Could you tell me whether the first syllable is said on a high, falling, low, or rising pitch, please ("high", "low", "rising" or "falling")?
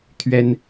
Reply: high